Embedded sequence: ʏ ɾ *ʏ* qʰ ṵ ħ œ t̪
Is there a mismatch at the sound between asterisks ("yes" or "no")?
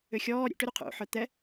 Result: yes